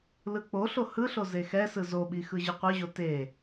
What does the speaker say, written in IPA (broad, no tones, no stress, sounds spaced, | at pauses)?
l ɯ k͡p o ɬ o h ɯ ɬ o z e x ɛ s ɯ z o ɓ i x ɯ ʑ ɯ qʷ ɯ ʑ o t e